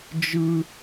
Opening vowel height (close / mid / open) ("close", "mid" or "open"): close